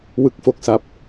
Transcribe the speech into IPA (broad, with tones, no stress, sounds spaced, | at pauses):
w ɯ˦˥ k̚ f o˦˥ k̚ s a˦˥ p̚